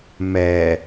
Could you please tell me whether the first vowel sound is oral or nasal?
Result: oral